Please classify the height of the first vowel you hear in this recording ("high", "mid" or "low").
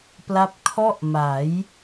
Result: low